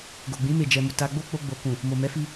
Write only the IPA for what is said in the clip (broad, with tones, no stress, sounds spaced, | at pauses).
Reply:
ɡ o˨ ɡ͡b ĩ˨˦ m e˦˨ d͡ʒ ɛ˧ m u˨ t a˧ ɡ͡b o˦ k͡p o˧ ɡ͡b o˨ k ũ˨ | m o˨ m ɛ˨˦ f i˧